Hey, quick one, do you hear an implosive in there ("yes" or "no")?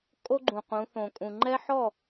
no